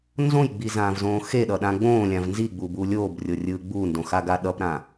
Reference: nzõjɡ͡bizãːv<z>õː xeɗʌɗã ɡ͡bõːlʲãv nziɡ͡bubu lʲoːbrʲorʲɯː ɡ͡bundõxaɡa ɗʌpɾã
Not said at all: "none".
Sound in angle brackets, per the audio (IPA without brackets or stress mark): z